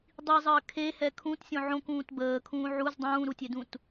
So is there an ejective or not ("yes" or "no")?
no